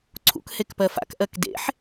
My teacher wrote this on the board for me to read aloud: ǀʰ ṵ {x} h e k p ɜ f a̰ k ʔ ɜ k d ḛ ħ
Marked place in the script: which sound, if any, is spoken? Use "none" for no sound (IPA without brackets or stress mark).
k